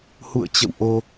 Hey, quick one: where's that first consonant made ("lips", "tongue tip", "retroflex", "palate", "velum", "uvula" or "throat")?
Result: throat